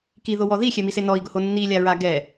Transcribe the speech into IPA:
kiðowɔ ðixʲɛmise nɔi̯ɡʊho nːilʲaɹa ɡɛ

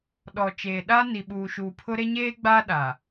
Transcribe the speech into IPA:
ɗɔ˨t͡ʃeː˨ɗa˦ ni˨ɓuː˨ʃuː˨pʰʊ˦ ɾe˦ɲeː˦ ɡ͡baː˦ɗa˨

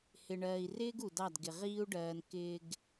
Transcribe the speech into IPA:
hɪ˨ɳɜː˨i̯rɪː˦ɡ u˨dɑ˦˨dɡɪ˨ ʁiː˦u̯ɖɜː˨nkɪː˨ɡ

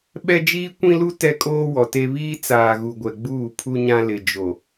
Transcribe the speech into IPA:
ɓɛ˦d͡ʒiː˦kʷĩ˦lu˦ tɛ˦kʼoː˦wɔ˨te˦ βiː˦t͡saː˨ɣu˨ɡʷɛ˨ ɡ͡buː˦˨pʰu˦ ɲã˦lɪ˨d͡ʒo˨

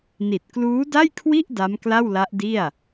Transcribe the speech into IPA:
ni˨˩t̚kluː˦˥da˥˩jkʰwi˥˩ʔ da˦˥mkla˥˩wla˦˥ʔdi˥˩a̯

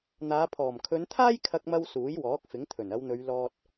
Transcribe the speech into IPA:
n̪aː˨˧pʰɔː˨˩m kʰɵ˨˧n t̪ʰaː˥jkʰɐ˧k̚mɐ˧w suː˨˥jwɔː˨˥k̚ fɪ˨˥ŋt̪ʰɵ˨˩n ɐ˨˧wn̪ɵ˨˧ɥlɔː˧t̚

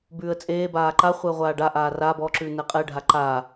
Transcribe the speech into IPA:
bʉːə̯t͡sʼeː baːǃa χʷeə̯ʁʷaːɖaʔaː ra bɔǁʉːnɛ qʼɛɖʱa ǃa

